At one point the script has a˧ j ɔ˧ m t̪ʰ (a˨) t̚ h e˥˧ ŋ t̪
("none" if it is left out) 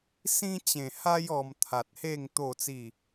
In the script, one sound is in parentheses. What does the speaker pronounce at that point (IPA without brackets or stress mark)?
a˨